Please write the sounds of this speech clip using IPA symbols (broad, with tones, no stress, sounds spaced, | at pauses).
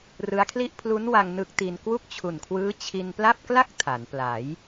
r ɯ˦˥ a̯ kʰ l i˥˩ ʔ pʰ l u˦˥ n w a˧ ŋ n ɯ˦˥ k̚ t i˧ n k w u˥˩ k̚ t͡ɕʰ u˨˩ n kʰ w ɯː˦˥ t͡ɕʰ i˧ n p l a˥˩ p̚ k l a˥˩ k̚ tʰ a˩˦ n p l a˩˦ j